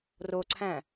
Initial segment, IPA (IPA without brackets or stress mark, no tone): r